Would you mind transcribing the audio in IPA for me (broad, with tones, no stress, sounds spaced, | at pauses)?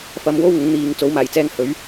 f ɐ˨˧ m w o˥ w ŋ ʊ˨˥ ŋ n̪ iː˨˧ ŋ t͡s o˨˥ w m aː˨˩ j t͡s ɛː˧ ŋ h ɵ˨˥ ɥ